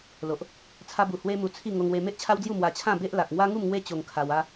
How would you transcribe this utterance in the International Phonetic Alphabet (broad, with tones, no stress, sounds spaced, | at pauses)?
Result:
l o˨ ʔ | t͡sʰ a˧ b u˨˩ h w e˦ m u˧ t͡sʰ i˥˧ ŋ o˧ ŋ w e˧ m e˦ ʔ t͡ɕʰ a˦ w d͡z j u˥˧ m w a˧ t͡ɕʰ ã˥˧ b e˦ ʔ l a˨ k̚ ŋ w a˦ ŋ u˥˧ m ŋ w e˦ t͡ɕ o˧ ŋ kʰ a˧ w a˦